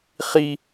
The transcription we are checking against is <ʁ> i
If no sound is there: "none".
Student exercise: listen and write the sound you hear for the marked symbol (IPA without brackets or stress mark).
χ